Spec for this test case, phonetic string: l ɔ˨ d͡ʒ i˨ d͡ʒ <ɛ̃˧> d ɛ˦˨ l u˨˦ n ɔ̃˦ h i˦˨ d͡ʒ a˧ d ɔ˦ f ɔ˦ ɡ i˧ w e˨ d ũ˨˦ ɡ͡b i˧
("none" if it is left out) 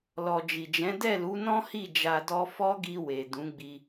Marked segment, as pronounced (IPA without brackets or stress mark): ɛ̃˨˦